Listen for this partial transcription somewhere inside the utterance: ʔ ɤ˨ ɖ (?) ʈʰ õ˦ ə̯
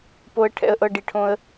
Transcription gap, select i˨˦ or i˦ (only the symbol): i˨˦